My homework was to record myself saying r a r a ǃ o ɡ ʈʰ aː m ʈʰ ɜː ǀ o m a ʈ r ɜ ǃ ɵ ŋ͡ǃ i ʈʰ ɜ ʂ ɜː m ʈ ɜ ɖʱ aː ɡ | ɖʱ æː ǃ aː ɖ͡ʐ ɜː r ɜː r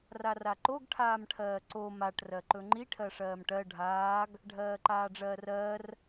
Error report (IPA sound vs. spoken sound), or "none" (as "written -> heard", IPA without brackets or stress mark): æː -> ɜː